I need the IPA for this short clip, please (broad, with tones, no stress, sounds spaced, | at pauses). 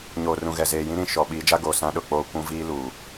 ɲ oː˨ r ũ˨ ɣ ɛ˨ z eː˨ j ĩ˦ ɾ ĩ˨ ʃ ɔ˨ ɓ iː˨˦ d͡ʒ a˦ ɡ oː˨ s ã˦ ɗ ʊ˦˨ k͡p oː˦ kʷ ũ˦ v iː˦ l uː˨